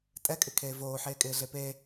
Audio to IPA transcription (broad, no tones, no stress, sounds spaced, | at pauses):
tʼ ɛ kʼ ɪ kʰ eː v oː ħ eː kʼ ɪː ɮ e p e